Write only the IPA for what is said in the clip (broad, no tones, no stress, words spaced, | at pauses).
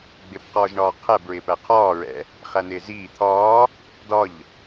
ɡ͡bɪbqɒːʒɳɒː qʰæbɹɪːpæ qʰɒːɹɛ̰ | χæn̪ɪːziː t̪ʰɒː | dɒʎ